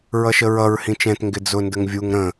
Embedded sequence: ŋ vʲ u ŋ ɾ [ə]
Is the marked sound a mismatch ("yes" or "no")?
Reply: yes